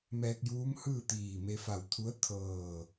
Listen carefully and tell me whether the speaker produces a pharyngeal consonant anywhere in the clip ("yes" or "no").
no